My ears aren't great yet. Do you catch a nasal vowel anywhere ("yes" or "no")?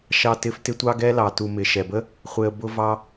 no